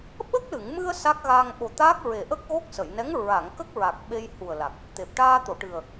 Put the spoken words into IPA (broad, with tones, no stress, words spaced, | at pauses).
ɓə˦˥k̚lɨ˨˩˨ŋmɨ˧ə̯ sa˦˥k̚ɣa˧ŋ ɓo˨˩t̪aː˦˥k̚ɹe˨˩ʔə˦˥k̚ ɣo˦˥k̚sə˨˩˨jnɛ˧˥ŋ ɹa˨˩˨ŋ kə˦˥k̚ɹa˨˩k̚ ɓe˧jhu˨˩ə̯la˨˩k̚ | t̪e˨˩p̚ ʈaː˧t̪o˨˩˨ʈɨ˨˩ə̯